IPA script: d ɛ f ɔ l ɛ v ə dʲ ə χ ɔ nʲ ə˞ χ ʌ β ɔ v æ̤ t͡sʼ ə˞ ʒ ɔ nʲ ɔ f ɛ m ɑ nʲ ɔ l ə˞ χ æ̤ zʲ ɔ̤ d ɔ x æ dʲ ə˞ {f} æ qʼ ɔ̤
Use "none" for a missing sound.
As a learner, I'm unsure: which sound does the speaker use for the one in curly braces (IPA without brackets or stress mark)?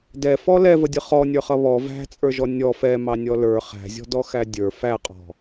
f